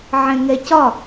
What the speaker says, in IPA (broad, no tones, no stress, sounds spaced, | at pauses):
ʕ ɛ̃ ŋ ɛ c ɒ